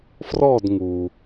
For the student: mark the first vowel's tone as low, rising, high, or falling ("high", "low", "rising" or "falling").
falling